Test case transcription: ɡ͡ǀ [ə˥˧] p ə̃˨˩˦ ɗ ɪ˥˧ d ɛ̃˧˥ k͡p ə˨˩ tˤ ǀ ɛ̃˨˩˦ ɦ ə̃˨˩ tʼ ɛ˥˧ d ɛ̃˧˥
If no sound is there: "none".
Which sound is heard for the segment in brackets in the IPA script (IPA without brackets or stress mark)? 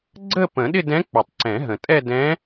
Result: ə˥˧